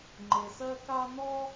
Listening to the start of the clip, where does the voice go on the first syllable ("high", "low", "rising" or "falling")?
low